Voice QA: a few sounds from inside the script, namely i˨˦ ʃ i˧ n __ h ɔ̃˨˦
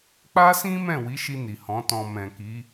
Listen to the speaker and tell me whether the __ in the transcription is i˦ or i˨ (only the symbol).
i˨